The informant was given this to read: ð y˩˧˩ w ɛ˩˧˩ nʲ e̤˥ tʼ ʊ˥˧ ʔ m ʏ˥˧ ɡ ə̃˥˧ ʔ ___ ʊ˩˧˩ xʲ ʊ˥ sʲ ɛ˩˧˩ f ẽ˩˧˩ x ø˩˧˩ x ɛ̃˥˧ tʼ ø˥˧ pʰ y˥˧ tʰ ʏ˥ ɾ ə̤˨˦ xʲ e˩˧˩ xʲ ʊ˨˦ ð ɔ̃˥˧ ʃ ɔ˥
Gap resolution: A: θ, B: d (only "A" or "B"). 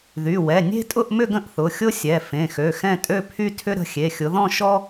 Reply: A